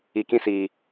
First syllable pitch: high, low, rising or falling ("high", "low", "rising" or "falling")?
low